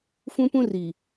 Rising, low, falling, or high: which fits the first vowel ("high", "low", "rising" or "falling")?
high